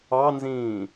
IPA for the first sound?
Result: ɑ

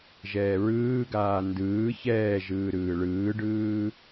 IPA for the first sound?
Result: ʒ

